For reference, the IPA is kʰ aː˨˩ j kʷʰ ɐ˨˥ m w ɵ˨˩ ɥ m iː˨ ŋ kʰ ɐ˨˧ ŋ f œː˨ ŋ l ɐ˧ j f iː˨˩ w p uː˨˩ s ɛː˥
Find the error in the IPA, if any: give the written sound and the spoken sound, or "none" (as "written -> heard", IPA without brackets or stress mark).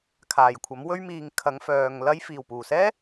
ɵ˨˩ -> ɵ˧